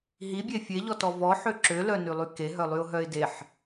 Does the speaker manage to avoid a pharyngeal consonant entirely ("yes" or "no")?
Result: no